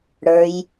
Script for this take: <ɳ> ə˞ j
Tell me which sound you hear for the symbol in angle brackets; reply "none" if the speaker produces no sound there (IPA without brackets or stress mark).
ɽ